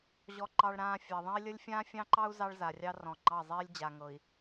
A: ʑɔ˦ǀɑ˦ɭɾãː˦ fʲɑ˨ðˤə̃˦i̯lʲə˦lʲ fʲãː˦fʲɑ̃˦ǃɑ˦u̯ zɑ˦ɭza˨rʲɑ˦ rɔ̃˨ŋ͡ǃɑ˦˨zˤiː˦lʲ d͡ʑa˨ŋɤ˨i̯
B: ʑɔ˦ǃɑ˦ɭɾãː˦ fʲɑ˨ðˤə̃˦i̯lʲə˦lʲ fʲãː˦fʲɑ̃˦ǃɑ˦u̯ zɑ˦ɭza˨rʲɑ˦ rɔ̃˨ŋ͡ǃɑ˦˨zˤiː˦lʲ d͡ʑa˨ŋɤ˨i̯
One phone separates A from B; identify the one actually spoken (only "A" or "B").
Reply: B